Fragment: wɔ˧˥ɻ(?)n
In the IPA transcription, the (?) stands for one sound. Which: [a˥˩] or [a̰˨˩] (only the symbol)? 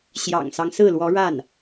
a˥˩